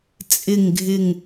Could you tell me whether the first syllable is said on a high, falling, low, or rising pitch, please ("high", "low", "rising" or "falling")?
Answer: falling